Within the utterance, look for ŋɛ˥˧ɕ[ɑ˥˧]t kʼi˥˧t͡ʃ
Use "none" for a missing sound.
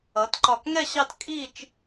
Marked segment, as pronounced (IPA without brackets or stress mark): ɑ˥˧